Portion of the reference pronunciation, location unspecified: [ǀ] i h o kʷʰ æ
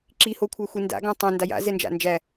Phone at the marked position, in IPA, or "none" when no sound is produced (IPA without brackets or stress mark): ǁ